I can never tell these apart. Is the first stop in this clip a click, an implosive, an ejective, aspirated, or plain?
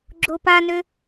click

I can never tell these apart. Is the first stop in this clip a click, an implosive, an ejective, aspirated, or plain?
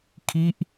aspirated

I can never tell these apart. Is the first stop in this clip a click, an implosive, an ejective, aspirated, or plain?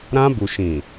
plain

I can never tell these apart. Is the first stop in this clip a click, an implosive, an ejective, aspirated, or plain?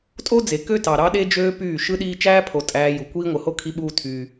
ejective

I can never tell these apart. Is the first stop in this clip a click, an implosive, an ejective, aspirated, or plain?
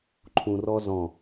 click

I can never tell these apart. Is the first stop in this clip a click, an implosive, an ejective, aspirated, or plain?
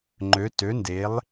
click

